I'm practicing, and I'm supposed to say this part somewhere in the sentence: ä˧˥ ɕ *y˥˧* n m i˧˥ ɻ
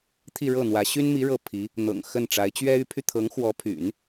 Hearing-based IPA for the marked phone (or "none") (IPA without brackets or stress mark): y˥